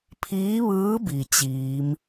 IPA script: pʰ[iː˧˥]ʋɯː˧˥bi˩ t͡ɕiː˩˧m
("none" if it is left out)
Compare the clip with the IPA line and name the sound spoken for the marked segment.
iː˧˥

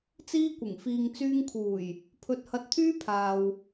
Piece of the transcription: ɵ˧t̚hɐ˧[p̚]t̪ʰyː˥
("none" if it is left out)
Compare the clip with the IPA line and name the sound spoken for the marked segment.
t̚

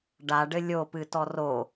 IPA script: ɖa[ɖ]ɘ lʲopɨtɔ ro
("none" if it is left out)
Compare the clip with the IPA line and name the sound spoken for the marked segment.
ɖ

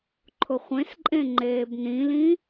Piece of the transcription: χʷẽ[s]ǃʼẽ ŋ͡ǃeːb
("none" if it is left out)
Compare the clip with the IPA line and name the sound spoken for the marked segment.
s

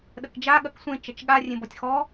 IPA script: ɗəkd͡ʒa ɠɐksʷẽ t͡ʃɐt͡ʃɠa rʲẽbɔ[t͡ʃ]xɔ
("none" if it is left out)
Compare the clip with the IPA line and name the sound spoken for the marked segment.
tʲ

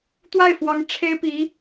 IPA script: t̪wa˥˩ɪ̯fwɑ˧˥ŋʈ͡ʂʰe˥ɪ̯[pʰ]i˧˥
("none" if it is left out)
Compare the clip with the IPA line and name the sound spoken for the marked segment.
p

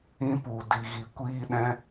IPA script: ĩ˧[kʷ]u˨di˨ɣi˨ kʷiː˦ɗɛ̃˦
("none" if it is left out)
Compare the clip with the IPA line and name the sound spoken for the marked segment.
p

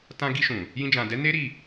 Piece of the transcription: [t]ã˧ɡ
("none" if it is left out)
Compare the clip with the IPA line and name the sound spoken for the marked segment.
t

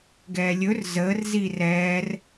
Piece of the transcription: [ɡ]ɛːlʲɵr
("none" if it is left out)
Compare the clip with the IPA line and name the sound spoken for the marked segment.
ɡ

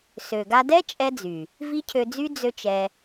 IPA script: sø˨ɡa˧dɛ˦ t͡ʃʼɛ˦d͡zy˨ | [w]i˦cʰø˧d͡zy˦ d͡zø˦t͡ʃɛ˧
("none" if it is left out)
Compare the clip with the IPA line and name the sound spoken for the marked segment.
v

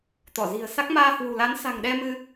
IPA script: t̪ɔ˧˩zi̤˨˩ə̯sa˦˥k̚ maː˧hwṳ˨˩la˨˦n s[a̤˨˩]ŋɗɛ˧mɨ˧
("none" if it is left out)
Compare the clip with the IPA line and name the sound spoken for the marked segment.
a̤˨˩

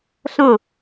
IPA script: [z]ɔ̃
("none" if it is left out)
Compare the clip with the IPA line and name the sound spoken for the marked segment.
ɬ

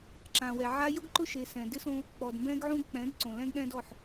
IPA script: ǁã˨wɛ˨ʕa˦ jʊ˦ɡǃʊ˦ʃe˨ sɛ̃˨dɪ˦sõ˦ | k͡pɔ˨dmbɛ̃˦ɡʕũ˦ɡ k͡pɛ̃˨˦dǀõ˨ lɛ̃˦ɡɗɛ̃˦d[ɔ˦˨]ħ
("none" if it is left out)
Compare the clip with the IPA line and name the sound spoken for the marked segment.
ɔ˦˨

